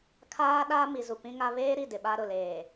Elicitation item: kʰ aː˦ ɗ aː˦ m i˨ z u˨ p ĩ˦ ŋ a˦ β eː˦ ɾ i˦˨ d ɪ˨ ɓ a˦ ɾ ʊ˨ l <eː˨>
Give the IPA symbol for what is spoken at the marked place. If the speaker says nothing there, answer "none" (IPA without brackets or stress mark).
eː˨